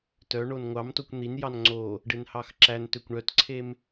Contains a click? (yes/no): yes